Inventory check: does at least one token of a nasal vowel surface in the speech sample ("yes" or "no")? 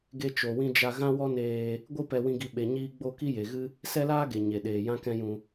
yes